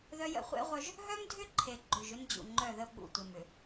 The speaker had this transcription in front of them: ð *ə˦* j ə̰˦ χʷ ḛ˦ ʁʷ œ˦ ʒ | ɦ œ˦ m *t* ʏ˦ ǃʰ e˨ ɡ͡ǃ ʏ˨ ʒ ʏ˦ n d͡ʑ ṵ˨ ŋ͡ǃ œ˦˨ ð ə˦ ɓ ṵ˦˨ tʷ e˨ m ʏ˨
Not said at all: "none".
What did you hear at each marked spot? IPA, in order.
œ˦, dʱ

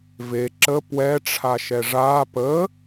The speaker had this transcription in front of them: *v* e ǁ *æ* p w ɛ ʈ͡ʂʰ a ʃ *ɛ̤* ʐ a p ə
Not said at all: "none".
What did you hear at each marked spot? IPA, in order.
v, ə, ɛ

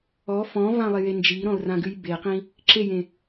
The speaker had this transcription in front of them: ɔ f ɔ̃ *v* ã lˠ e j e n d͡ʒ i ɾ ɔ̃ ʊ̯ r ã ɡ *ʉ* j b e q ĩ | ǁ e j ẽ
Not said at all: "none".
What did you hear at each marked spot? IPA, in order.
v, ʉ

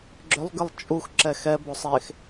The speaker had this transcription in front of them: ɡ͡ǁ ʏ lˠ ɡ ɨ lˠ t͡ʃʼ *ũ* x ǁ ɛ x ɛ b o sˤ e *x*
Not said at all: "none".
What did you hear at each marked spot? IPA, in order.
u, x

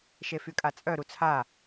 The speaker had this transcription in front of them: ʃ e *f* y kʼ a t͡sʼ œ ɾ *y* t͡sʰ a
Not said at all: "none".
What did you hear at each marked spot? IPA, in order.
f, u

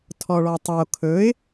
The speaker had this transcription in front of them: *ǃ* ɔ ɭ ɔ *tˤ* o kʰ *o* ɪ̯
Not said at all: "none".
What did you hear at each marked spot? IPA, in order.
tʰ, tˤ, ɵ

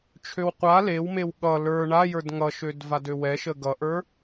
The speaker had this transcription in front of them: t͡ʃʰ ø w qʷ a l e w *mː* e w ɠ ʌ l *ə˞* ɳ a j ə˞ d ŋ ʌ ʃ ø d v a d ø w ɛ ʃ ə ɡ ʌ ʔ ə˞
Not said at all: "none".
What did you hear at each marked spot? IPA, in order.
m, ə˞

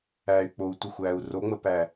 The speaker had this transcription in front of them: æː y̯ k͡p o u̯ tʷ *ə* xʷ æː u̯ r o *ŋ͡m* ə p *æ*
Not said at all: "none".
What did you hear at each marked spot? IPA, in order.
ə, ŋ͡m, æ

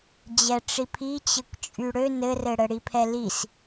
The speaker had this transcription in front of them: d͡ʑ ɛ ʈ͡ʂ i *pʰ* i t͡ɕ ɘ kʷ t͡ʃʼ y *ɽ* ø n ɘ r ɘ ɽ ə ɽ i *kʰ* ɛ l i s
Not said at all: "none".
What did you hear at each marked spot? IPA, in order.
pʰ, ɽ, pʰ

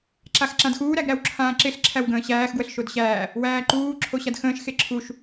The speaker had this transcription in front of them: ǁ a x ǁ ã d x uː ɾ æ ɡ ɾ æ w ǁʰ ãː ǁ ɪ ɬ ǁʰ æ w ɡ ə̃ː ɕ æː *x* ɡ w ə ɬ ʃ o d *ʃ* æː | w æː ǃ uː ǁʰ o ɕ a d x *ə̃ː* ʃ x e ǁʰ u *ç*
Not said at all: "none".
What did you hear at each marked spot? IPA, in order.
x, ɕ, ə̃ː, ʃ

